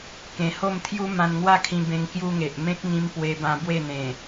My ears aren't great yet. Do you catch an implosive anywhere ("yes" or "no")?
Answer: no